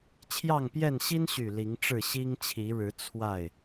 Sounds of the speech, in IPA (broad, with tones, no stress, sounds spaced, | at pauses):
t͡ɕʰ j ɑ˥˨ ŋ p j ɛ˥˨ n ɕ i˦ n ɕ y˨˩ l i˨˦ ŋ ʈ͡ʂ ɻ̩˥˨ ɕ i˦ ŋ t͡ɕʰ i˨˦ ɻ ɻ̩˨˦ t͡sʰ w a˥˨ ɪ̯